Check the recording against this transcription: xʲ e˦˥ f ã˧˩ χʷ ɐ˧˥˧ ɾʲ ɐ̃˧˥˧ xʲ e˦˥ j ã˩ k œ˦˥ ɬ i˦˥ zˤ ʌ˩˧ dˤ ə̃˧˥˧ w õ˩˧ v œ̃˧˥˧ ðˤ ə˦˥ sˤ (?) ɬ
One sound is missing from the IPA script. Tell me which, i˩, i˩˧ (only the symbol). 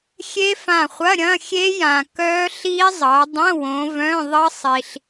i˩